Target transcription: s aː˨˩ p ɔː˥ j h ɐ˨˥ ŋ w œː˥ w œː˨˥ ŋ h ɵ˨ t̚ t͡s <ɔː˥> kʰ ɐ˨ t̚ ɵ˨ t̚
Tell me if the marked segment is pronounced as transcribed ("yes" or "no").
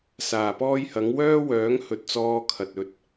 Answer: no